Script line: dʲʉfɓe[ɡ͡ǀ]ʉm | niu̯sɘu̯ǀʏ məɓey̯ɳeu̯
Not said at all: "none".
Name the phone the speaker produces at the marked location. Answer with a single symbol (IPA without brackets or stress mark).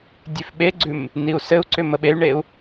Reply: ɡ͡ǀ